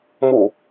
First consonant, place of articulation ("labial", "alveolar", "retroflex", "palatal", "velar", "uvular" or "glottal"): labial